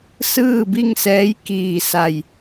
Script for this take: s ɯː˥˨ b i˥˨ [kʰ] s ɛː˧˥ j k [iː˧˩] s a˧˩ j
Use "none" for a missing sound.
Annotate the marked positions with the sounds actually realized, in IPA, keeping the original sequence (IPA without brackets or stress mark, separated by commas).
ŋ, iː˧˩